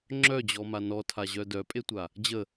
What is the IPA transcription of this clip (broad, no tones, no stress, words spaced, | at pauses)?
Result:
ŋ͡ǁœd͡ʑɔma nɔtʰaʑœ dœpʼetʷa | d͡ʑə